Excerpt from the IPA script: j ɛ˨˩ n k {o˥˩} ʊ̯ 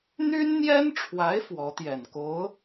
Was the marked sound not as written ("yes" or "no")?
yes